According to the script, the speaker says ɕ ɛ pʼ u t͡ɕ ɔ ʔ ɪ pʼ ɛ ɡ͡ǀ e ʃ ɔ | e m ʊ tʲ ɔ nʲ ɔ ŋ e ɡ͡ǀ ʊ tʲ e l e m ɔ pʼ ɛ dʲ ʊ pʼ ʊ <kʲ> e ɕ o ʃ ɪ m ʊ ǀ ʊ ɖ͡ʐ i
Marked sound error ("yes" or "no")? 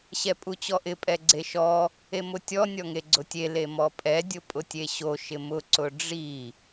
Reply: yes